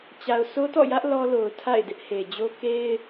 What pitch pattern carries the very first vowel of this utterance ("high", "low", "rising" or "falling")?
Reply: low